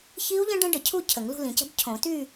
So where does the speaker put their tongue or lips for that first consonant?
palate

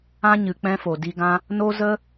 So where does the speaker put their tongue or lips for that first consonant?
palate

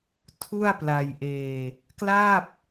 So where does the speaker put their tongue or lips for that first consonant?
tongue tip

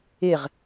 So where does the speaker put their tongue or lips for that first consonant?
uvula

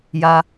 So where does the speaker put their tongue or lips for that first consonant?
palate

